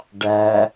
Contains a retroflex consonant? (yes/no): yes